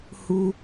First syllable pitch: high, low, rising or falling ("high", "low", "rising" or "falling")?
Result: high